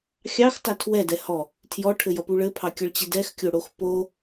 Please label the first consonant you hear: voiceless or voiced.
voiceless